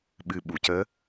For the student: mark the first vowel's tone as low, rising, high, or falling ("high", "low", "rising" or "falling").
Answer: low